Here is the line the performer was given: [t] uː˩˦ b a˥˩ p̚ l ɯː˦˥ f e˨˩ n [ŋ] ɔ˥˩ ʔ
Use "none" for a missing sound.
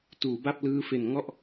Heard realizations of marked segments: t, ŋ

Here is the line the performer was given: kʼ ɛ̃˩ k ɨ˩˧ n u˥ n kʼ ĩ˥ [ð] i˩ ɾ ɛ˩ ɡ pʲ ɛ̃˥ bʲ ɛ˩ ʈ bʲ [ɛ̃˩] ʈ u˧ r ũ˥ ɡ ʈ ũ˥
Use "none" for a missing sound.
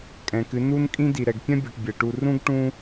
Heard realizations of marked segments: d, ɛ˩

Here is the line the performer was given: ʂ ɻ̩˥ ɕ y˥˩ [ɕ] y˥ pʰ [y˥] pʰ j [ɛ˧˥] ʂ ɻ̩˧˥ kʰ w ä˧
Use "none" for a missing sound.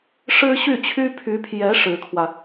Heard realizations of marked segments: t͡ɕʰ, y˧˥, ɛ˧˥

